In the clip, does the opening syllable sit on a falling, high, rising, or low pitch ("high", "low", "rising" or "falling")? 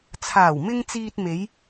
low